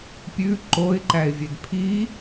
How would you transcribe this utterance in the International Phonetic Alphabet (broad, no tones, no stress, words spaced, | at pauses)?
pʲʉ ǃoɪ̯ǃæɪ̯vʲed pʰi